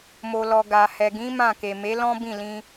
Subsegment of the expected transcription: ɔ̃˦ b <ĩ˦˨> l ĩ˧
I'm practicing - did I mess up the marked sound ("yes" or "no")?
no